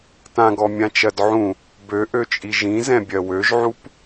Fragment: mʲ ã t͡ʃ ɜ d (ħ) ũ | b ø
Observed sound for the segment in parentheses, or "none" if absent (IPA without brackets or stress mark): ʕ